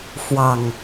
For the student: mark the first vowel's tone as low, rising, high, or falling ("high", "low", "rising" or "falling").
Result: low